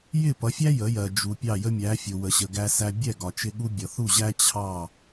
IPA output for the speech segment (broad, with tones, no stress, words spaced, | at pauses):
jɪ˥˩pʌ˩˥fʲæ˥ jə˩˥jɜ˩ d͡ʒu˩ pʲɑ˥˩jə˥mʲæ˩˥ fʲʊ˩ wə˩ɕə˩ ɡæ˧sæ˧ bʲɛ˥˩ɡɒ˩t͡ʃɪ˧ ɠu˥ bʲʌ˩θu˥˩ʑæ˥ t͡ɕʰɑ˥˩